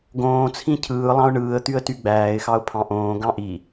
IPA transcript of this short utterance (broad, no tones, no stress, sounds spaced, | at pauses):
ɡ õː t͡sʰ ĩ cʰ ɯː lˠ ɑ̃ ʊ̯ ɳ ɯː ə̯ t̪ y ə̯ t y ɡ͡b æː ɪ̯ x ɑ ʊ̯ pʰ ɑ̃ ʔ õː ɡ ɑ̃ ʔ i